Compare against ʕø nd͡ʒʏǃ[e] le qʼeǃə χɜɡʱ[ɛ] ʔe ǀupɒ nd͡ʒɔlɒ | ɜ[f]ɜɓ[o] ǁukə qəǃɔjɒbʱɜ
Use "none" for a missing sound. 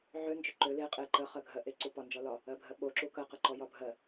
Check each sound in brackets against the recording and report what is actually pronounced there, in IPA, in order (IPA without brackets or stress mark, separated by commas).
ø, ɜ, bʱ, o